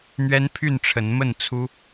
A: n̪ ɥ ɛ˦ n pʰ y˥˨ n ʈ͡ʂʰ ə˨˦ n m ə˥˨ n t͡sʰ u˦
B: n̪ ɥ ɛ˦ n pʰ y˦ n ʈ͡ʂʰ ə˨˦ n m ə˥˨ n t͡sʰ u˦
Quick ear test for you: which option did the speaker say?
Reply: A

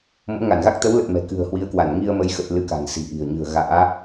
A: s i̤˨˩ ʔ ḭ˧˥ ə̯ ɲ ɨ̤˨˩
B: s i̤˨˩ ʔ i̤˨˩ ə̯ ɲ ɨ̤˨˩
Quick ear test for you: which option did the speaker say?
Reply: B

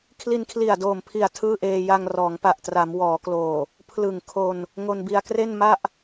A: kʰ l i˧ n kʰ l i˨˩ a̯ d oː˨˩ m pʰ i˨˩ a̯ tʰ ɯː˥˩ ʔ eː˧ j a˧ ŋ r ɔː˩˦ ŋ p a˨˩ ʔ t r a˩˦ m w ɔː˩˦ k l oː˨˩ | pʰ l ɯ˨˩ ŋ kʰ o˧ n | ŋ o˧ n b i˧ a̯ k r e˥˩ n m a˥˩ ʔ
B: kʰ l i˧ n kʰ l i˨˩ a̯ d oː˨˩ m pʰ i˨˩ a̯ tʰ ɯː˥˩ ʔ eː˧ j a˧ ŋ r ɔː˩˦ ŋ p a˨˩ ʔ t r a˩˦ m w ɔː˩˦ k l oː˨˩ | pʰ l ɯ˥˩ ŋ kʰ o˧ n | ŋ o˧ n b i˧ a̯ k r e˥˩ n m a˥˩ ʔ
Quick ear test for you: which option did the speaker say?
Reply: A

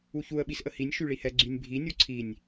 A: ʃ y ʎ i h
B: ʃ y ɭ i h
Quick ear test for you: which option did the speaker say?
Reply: B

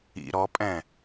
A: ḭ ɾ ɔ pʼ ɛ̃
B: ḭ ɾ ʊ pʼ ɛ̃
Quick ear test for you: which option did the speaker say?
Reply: A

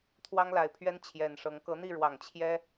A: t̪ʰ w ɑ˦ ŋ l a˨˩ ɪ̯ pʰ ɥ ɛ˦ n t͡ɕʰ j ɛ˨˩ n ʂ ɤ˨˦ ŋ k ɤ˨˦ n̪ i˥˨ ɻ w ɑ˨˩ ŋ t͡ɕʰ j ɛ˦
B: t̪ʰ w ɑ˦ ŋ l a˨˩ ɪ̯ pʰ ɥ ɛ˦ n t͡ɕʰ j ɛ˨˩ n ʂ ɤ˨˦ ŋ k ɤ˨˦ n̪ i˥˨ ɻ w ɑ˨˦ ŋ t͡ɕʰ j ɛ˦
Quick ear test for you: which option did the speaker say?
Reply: A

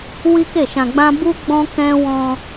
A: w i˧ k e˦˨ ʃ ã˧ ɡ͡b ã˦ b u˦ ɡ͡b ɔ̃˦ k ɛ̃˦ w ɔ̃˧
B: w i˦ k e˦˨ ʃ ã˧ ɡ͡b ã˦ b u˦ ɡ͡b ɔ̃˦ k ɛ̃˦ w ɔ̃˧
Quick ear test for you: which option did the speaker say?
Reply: B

